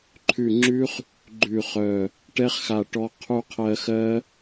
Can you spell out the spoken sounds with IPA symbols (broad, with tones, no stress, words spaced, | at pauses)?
ǃʰʉ˧˩ŋ͡ǁʉ˦˥χ | ɡ͡ǃʉ˧˩χœ˧˩ | ʈɛ˦˥χxa˧˩ʈɔ˧ qʰu˧qʰɜ˧xɜ˦˥